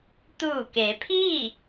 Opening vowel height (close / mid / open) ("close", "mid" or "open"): close